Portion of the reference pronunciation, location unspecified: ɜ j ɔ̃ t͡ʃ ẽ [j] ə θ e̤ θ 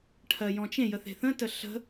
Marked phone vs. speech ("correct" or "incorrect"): correct